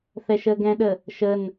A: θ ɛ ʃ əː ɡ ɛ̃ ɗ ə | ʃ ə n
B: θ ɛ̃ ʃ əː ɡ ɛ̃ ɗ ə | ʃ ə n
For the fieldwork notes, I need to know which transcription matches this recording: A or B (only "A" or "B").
A